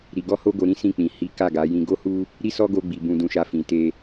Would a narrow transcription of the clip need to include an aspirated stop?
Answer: no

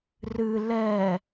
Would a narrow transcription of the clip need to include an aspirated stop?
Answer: no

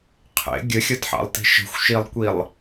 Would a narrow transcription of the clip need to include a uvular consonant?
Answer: yes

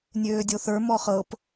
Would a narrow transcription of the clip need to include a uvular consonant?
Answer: yes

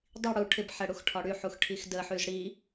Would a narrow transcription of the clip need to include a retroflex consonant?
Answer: yes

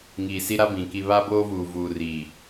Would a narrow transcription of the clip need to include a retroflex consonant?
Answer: no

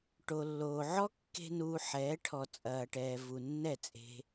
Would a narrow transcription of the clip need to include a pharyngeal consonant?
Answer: yes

